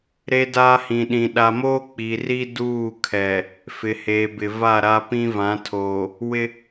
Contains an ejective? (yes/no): no